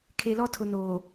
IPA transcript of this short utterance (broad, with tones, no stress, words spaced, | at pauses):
kʰe˨lɔ˦tʰʊ˨ noː˨